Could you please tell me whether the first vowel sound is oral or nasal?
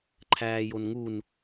oral